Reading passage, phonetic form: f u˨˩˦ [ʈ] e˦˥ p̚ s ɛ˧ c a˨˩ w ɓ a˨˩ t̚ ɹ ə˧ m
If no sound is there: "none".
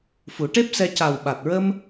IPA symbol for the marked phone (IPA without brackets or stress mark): ʈ